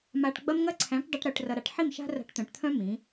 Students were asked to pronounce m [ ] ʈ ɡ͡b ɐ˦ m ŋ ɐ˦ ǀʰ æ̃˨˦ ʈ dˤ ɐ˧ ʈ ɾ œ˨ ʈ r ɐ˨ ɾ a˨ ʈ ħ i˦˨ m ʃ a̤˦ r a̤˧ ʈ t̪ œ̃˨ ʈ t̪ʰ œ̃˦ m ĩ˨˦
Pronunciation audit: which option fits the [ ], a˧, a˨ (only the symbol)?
a˧